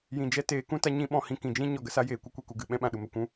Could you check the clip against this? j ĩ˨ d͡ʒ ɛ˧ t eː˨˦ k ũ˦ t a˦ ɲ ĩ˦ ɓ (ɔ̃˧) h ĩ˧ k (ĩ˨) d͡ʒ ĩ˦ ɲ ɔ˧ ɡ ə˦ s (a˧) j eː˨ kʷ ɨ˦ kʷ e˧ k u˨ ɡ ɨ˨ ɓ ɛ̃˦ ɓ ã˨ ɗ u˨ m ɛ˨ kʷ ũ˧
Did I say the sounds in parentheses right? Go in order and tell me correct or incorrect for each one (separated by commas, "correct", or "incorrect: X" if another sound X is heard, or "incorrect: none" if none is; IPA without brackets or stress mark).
correct, correct, incorrect: a˦